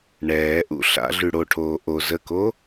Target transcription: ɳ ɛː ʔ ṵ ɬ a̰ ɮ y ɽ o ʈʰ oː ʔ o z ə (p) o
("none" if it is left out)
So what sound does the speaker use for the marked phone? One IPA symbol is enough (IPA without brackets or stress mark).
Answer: k